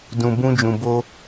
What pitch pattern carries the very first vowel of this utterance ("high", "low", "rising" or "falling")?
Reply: low